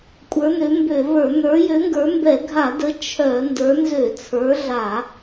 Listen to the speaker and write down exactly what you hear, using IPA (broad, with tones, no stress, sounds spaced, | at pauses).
kʷʼ ə˞˨˦ n ø˨˦ m b ø˧˩˧ v ə˞˧˩˧ n ə˞˨˦ j ø˨˦ ŋ ɡ ə˞˨˦ m b ɛ˧˩˧ ɡʱ a˧˩˧ d ə˨˦ t͡ʃʰ œ˧˩˧ n d ə˞˨˦ n z ø˧˩˧ t͡sʰ ə˞˨˦ ɮ a˧˩˧